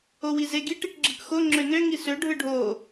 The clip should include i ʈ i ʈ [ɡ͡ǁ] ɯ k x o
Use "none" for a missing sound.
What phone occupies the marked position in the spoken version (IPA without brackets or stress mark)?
ɡ͡ǁ